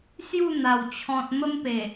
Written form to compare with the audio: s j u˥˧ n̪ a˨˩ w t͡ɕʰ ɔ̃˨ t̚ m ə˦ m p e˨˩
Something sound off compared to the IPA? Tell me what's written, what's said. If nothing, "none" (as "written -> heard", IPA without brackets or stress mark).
none